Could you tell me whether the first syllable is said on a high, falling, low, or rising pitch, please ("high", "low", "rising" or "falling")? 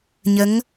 rising